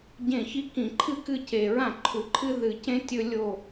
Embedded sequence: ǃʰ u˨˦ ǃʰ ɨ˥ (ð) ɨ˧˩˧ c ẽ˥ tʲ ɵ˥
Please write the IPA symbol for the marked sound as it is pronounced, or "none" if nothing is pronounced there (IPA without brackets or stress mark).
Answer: ð